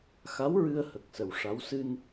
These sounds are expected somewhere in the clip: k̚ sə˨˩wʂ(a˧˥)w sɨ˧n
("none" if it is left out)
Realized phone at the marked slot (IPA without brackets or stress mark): a˧˥